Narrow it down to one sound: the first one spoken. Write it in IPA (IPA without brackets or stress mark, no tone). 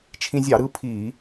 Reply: t͡ʃʰ